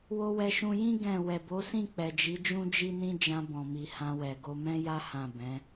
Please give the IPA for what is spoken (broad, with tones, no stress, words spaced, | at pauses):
wo˧wɛ˧ʃũ˧jĩ˦ ɡɛ̃˦˨ wɛ˨bo˨˦sĩ˦˨ k͡pɛ˨d͡ʒi˨˦ d͡ʒũ˦d͡ʒi˦nĩ˦ d͡ʒã˧bɔ̃˨mi˨ hã˧wɛ˨ ɡo˧mɛ̃˦ja˦ hã˦˨bɛ̃˨˦